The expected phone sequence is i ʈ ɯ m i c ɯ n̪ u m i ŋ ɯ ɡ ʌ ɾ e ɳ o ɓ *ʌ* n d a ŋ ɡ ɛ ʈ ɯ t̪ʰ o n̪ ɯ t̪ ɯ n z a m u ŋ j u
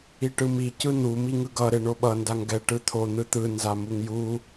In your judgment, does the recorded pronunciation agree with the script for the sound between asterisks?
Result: yes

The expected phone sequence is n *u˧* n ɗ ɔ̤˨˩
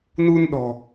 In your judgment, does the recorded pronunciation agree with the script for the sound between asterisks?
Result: yes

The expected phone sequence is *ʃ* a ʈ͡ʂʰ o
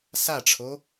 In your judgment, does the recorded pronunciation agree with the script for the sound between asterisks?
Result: no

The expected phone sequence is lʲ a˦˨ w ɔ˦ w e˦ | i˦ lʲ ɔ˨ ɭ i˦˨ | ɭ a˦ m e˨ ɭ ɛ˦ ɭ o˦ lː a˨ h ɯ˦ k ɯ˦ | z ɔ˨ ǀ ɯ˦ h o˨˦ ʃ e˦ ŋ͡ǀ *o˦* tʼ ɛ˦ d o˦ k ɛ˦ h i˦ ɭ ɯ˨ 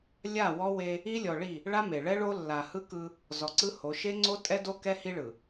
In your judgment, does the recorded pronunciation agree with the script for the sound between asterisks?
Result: yes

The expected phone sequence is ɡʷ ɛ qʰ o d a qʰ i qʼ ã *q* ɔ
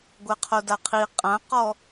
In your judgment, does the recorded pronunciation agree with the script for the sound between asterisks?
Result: yes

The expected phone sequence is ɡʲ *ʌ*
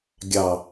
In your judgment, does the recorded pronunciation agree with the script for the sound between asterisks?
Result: no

